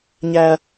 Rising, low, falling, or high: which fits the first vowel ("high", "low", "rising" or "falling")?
high